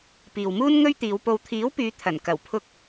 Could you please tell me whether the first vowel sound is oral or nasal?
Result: oral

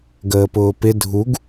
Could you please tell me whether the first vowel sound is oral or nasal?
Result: oral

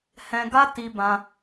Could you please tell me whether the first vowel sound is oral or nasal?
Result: nasal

